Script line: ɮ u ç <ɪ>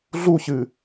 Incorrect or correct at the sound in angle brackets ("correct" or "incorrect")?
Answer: incorrect